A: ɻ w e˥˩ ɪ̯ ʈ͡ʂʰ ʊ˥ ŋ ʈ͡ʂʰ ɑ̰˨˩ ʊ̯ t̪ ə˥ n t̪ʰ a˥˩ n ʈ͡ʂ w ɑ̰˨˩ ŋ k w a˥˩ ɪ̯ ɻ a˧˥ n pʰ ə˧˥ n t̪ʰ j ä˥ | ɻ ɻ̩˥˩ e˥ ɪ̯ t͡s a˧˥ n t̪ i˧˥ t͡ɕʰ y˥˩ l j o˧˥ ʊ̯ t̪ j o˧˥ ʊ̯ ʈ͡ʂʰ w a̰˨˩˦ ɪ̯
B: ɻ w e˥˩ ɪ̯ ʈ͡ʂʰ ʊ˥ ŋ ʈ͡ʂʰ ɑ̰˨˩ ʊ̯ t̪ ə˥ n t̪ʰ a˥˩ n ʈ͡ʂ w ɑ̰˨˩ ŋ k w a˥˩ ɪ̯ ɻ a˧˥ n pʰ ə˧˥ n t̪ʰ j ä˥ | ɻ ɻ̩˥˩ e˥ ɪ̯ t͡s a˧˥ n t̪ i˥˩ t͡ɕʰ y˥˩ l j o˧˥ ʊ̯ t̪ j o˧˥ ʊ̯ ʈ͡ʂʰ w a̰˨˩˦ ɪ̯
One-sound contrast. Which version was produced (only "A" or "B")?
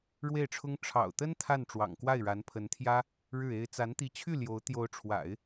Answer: A